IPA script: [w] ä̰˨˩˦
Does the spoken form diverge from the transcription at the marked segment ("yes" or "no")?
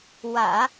no